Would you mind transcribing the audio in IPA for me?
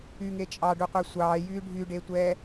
y ŋ e t͡ʃʼ ɑ ɖ u qʷ e sʷ ɑː j yː ɖʱ y ɖ e tʷ ɛː

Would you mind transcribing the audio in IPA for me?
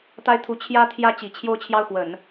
t̪ a˥ ɪ̯ t̪ʰ u˧˥ t͡ɕʰ j ä˥ t̪ʰ j ä˥ t͡ɕ i˨˩ t͡ɕʰ j o˥˧ ʊ̯ t͡ɕʰ j ɑ˥˩ ʊ̯ x w ə˨˩˦ n

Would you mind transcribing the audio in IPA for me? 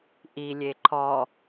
ʔ i lʲ e ǃʰ ɔ

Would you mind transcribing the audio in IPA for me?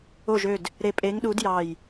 o˧˩ ʒ ø˧˩ d | ɾ e˧˩ pʼ e˨˥ ŋ ɗ u˨˥ d j ɑ˧˩ j

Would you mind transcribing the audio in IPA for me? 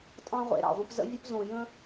tʼ ɑ̃˦ ʁʷ ḛ˨ ɾ ɑ̰˨ ʁʷ ə̃˧ p z ə̰˦ vʲ ə˦ p z õ˨ j ə̃˦

